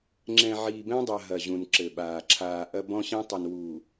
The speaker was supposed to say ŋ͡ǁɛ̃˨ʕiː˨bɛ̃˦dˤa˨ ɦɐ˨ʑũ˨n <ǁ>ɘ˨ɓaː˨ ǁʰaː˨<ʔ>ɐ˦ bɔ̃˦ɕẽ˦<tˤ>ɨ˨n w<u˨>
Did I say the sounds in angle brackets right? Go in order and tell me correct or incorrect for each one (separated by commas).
correct, correct, correct, correct